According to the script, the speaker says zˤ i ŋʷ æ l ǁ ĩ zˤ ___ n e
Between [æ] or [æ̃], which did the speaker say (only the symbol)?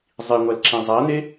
æ